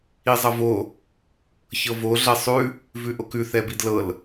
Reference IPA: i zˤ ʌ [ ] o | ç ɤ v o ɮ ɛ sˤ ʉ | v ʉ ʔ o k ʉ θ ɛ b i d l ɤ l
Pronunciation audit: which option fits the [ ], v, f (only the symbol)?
v